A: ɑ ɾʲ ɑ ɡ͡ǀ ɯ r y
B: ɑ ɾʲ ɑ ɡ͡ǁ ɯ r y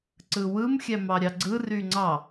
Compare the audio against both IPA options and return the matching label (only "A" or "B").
A